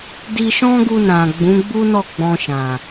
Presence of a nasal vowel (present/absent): present